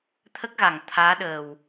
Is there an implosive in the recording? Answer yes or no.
yes